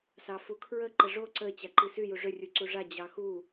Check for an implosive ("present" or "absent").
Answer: absent